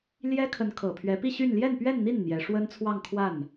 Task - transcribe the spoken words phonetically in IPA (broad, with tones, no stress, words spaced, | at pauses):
ljɛ˥kʰə˧˥n kʰɤ˨˩pʰɥɛ˧˥ pi˥˧ɕy˥˧n ljɛ˥˧npɥɛ˥˧nn̪i˥˩n n̪jɛ˧˥ ʂwə˥nt͡sʰwɑ˥˧ŋkʰwa˥˩n